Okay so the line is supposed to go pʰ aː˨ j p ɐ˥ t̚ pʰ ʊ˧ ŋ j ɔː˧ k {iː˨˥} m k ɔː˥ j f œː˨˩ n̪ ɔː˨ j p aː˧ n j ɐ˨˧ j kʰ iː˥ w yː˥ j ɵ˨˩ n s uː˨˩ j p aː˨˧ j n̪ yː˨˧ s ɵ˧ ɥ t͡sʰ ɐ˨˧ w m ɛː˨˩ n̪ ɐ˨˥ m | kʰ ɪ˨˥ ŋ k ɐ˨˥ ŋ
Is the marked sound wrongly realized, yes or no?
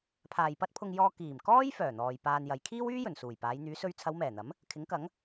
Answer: yes